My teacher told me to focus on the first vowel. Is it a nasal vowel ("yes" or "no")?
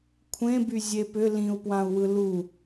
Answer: yes